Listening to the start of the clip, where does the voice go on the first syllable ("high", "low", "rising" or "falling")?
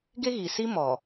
high